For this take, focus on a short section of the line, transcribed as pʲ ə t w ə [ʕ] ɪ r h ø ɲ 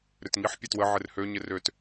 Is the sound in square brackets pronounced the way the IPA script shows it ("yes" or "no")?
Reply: yes